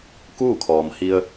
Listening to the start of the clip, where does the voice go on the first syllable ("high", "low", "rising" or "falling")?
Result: falling